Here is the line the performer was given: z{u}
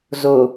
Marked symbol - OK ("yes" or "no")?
no